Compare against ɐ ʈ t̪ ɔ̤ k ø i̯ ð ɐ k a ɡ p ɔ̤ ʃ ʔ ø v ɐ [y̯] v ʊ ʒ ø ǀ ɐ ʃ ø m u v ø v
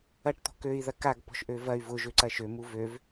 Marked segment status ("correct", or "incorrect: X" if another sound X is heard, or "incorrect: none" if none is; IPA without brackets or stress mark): correct